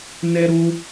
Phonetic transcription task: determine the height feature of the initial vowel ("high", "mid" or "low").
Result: mid